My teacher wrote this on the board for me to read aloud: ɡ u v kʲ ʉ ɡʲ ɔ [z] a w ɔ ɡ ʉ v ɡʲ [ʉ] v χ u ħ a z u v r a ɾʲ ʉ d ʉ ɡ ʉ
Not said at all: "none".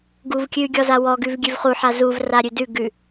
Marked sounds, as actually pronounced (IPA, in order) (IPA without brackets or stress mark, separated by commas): z, ʉ